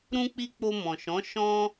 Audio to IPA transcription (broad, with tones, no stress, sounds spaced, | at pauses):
ɾ ũ˧ k͡p i˧ k͡p o˧ m ɔ̃˨ ʃ ɔ̃˨˦ ʃ ɔ̃˦